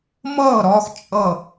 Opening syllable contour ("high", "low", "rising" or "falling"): falling